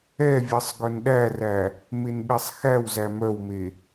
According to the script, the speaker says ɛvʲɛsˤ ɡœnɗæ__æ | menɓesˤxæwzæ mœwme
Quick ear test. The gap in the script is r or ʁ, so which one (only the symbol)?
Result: r